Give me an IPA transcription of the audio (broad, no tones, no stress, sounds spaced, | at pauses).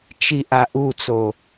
t͡ʃ i ʔ a ʔ u t͡s o